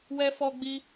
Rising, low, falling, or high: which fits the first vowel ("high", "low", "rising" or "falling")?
high